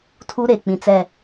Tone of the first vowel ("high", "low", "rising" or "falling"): high